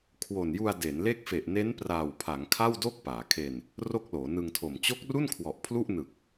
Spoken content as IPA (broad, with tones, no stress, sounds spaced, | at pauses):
kʰ w o˨˩ n j u˧ a̯ d e˩˦ n l e˦˥ k̚ f e˨˩ ʔ n e˦˥ n p r aː˨˩ w pʰ a˩˦ ŋ kʰ a˥˩ w d o˥˩ k̚ p aː˩˦ kʰ e˧ n | r o˥˩ k̚ l oː˩˦ n ɯ˧ ŋ tʰ o˨˩ m t͡ɕ o˦˥ k̚ r u˥˩ n kʰ w ɔ˨˩ ʔ pʰ l u˥˩ ʔ n ɯ˨˩ k̚